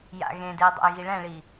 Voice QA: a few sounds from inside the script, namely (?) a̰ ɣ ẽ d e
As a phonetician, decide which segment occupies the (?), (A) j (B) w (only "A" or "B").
A